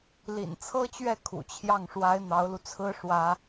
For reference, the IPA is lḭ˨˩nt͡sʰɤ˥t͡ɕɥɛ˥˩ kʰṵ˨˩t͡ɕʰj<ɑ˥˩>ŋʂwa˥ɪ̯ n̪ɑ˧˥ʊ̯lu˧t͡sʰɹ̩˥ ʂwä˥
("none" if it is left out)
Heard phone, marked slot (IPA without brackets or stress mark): ɑ˥˩